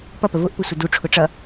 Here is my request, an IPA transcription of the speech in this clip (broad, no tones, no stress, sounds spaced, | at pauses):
p ʌ p ə v ʊ ʔ p ʊ sʷ ə d u ʈ͡ʂʰ ʊ ʈ͡ʂ ʌ